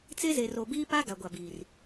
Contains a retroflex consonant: no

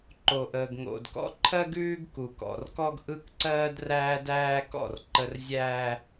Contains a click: yes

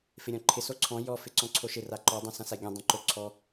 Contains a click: yes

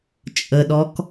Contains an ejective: yes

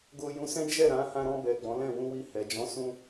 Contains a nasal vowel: yes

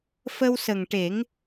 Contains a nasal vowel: no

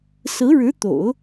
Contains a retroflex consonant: yes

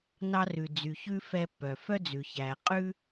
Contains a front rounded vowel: yes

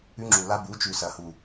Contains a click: yes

